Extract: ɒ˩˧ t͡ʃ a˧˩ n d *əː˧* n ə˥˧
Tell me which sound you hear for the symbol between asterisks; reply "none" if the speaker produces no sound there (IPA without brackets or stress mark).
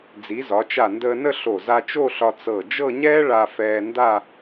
əː˧